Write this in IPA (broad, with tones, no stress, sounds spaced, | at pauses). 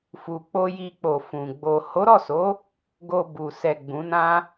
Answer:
f u˨ k͡p o˧ j i˧ k͡p o˨ f ũ˨ ɡ͡b o˨ h o˨˦ ɾ ɔ˦˨ s o˨˦ | ɡ o˧ b u˨ s ɛ˨ ɡ͡b ũ˨˦ n ã˦